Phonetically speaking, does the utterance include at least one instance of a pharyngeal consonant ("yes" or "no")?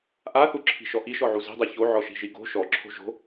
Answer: yes